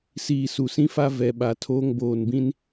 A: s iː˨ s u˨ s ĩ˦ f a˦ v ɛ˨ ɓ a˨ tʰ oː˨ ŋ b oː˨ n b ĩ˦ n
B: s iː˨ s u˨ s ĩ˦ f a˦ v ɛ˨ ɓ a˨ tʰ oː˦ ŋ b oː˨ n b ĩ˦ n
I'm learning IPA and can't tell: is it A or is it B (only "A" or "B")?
B